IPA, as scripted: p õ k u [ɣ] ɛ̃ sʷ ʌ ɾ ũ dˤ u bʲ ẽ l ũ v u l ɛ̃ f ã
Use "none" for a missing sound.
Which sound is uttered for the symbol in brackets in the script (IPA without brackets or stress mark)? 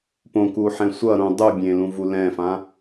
ħ